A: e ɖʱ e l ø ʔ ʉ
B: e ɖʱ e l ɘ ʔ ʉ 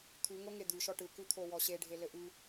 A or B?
B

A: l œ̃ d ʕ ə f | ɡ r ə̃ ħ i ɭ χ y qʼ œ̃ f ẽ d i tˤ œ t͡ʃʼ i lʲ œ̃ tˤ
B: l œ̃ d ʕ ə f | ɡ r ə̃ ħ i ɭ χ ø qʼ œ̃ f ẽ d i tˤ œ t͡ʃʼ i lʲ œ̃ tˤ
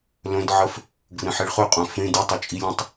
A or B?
B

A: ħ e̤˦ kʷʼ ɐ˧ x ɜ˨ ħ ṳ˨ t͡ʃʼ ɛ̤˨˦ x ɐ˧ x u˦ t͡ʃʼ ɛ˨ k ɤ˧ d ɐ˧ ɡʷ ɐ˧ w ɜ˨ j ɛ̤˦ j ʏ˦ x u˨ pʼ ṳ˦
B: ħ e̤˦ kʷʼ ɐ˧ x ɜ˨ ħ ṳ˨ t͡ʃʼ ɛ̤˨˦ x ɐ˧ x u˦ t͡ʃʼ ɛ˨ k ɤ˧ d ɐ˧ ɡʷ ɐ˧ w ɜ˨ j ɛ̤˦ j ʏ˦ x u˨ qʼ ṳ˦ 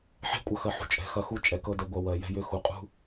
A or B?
B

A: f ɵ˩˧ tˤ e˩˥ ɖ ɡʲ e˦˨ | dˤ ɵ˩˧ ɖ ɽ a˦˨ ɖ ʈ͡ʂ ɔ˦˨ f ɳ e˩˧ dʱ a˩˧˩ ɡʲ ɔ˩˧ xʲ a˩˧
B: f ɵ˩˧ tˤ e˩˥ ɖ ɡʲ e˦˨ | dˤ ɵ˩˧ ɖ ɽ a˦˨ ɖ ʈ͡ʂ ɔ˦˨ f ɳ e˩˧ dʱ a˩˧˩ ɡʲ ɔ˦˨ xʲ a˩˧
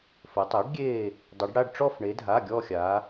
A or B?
B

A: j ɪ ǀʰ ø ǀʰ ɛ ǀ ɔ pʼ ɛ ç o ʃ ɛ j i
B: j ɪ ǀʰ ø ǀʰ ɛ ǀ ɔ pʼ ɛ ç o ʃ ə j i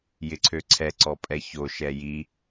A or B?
A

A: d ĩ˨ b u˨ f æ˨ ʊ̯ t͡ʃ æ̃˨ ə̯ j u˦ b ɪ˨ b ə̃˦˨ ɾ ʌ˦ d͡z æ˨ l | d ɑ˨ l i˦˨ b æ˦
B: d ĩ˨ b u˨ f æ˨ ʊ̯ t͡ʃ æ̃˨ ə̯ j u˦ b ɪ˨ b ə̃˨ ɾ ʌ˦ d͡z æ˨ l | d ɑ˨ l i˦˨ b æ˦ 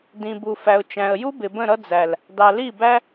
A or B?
A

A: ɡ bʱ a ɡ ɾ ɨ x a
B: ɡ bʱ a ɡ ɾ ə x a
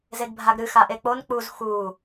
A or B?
A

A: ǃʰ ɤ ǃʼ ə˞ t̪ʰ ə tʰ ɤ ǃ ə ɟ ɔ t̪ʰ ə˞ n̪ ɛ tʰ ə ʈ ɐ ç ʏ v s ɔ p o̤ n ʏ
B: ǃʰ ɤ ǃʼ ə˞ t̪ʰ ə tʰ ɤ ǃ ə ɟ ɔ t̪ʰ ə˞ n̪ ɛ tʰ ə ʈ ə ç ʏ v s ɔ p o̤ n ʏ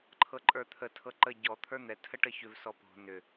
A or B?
B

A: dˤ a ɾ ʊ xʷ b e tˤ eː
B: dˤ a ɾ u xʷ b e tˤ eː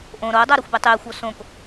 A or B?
A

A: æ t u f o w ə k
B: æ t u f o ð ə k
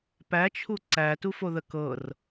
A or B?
B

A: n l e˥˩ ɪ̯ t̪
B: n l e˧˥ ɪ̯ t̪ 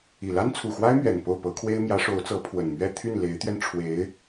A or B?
B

